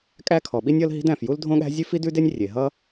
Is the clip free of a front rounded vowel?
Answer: yes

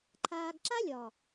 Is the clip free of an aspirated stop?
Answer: no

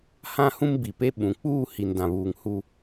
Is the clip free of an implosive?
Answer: no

